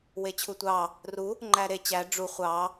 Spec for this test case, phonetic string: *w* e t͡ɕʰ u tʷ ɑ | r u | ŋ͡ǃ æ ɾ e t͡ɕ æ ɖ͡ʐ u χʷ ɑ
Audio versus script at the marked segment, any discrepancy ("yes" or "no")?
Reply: no